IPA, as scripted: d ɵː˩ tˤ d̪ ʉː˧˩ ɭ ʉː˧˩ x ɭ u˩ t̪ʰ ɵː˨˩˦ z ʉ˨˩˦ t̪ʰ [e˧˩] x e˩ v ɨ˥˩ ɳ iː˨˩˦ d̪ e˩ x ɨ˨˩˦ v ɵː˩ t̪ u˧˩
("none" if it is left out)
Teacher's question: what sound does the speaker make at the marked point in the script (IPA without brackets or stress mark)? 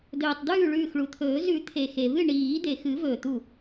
e˩